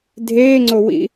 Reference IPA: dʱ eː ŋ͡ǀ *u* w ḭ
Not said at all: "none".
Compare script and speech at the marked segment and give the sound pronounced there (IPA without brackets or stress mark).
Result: o